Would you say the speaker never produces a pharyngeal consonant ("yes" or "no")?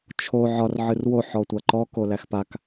no